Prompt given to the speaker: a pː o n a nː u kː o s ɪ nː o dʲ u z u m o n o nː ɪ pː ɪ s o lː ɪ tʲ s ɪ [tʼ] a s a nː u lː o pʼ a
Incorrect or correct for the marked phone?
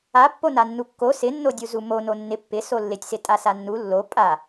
correct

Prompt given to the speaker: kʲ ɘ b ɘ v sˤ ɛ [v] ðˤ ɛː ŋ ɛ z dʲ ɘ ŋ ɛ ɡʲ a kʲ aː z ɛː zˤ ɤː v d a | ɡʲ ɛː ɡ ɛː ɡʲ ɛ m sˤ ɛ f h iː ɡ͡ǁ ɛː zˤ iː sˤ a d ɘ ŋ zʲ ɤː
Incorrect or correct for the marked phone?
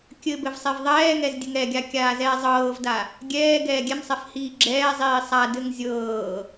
correct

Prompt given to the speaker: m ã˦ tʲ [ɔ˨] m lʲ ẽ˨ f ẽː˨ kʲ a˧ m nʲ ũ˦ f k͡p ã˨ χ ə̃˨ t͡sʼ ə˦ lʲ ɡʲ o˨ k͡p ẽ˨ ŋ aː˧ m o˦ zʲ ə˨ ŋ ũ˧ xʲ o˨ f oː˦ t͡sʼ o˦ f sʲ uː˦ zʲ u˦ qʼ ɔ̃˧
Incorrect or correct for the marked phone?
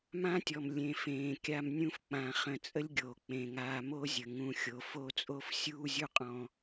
correct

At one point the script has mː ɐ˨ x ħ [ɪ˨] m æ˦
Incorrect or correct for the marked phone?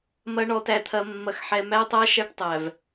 incorrect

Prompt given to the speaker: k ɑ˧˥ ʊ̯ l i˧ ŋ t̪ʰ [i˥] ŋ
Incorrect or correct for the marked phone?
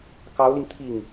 incorrect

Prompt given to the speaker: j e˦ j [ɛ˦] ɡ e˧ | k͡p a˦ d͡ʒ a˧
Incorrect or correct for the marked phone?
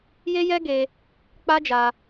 correct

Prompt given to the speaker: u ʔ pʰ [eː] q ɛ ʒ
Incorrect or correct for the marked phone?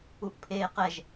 correct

